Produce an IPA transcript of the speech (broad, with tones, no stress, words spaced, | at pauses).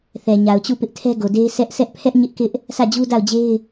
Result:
θɛ˨ɲa˨ʊ̯t͡ɕu˦˨ pɪ˦ʔtʰɛ˦ɡo˨de˦ɪ̯ sʰɛ˦ʔ sʰɛ˦ʔpʰɛ˦ʔ ɲɪ˦ʔkɪ˦ʔ | sʰä˦˨d͡ʑu˦ da˦˨ʊ̯d͡ʑe˦ɪ̯